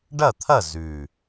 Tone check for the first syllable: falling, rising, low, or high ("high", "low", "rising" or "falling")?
falling